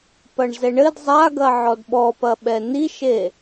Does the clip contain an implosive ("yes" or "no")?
yes